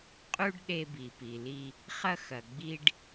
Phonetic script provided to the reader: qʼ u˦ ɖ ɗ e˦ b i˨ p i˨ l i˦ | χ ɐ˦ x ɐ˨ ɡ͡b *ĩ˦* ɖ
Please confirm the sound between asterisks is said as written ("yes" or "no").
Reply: no